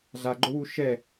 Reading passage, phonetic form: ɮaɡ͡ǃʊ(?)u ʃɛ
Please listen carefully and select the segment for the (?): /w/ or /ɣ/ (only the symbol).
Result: w